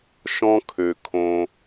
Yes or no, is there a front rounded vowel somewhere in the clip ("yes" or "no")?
yes